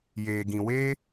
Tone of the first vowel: low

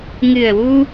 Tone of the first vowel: low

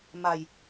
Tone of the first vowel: low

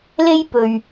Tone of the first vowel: high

